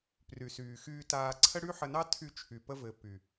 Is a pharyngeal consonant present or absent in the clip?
present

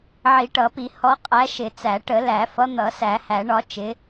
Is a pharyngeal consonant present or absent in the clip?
present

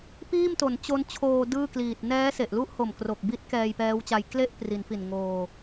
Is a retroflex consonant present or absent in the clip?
absent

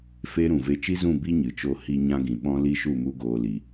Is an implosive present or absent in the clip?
present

